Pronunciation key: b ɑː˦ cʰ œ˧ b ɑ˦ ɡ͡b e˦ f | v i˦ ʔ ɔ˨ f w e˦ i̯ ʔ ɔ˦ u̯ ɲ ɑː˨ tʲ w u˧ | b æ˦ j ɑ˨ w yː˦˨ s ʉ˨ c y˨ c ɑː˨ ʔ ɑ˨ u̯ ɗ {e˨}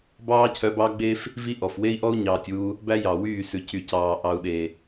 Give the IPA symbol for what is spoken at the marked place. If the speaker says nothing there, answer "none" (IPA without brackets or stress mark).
e˨